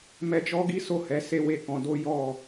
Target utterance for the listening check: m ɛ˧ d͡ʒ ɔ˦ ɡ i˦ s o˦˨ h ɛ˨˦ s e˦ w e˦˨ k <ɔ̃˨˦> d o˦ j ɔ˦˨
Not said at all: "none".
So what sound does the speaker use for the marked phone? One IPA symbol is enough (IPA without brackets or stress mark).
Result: ɔ̃˧